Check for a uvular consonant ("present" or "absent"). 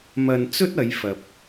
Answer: absent